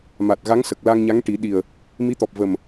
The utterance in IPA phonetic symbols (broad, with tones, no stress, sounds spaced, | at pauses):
m a˨˩ t̚ ɣ a˧˥ ŋ s ə˨˩ k̚ l a˧ ŋ ɲ a˧˥ ŋ ʈ i˨˩˦ ɗ i˨˩ ə̯ | m i˧˥ t̪ ɔ˨˩ p̚ v ə˨˩ m